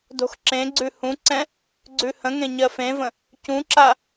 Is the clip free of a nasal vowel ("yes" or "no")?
no